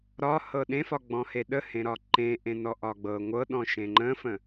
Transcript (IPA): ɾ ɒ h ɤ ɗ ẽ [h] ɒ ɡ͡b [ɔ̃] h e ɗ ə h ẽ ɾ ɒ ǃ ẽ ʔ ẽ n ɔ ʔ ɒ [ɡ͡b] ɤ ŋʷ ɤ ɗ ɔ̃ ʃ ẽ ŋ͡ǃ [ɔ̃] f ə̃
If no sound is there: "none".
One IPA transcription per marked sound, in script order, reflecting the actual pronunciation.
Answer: f, ɔ̃, ɡ͡b, ə̃

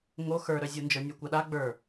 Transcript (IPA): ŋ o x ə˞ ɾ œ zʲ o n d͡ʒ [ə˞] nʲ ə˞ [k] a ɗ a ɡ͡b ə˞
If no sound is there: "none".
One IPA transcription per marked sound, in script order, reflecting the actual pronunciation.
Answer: ə˞, kʷ

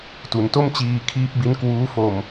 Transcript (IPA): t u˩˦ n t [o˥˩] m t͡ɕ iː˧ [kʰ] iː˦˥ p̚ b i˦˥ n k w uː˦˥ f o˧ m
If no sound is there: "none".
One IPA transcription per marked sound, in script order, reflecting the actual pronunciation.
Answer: o˥˩, kʰ

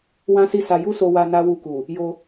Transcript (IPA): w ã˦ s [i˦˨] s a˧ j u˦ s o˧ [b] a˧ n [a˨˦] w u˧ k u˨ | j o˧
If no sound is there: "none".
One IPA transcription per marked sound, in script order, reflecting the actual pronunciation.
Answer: i˦˨, w, a˦

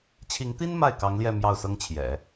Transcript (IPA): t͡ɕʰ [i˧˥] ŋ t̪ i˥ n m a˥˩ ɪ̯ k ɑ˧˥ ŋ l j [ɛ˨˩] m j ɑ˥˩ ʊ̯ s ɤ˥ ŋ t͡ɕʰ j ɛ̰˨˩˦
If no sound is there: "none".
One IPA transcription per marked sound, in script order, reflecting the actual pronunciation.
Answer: i˧˥, ɛ˥˧

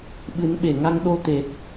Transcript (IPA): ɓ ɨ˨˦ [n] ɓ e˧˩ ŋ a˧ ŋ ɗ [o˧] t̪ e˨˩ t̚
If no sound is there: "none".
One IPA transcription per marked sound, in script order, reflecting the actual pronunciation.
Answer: n, o˧

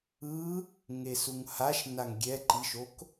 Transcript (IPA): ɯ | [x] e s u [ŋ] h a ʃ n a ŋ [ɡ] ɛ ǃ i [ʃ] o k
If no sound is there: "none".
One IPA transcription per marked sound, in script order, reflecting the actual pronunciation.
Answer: ŋ, ŋ, ɡʲ, ʃ

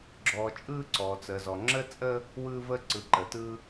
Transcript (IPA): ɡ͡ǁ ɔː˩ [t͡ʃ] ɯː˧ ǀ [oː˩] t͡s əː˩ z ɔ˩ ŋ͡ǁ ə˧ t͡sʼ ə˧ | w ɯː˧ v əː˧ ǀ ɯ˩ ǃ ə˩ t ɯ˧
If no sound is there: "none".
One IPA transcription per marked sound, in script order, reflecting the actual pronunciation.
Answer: t͡ʃʼ, ɔː˩

